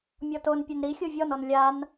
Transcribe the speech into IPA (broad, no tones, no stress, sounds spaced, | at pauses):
mʲ ɔ t o n pʲ ɛ n ɾ i xʲ o vʲ ɔ n ɔ n lʲ a n